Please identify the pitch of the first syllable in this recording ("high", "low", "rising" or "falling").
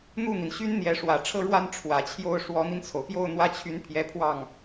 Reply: falling